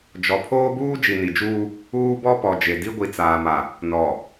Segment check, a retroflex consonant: absent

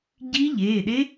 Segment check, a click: absent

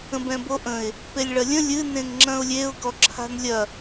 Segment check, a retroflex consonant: present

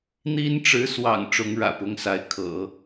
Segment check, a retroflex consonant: present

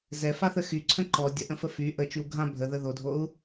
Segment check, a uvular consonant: absent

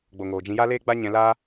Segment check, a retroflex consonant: absent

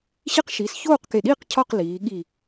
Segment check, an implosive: present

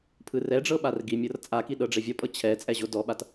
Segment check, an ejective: present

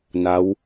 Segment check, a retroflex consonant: absent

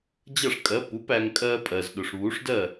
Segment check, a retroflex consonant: present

